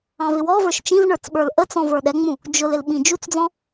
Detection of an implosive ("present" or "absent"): present